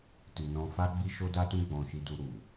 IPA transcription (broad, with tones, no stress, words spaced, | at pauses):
ti˨nɔ̃˧fa˦ɡ͡bi˦ ʃo˦da˦tũ˦ ɡ͡bɔ̃˧ʃi˧du˧ ɾu˨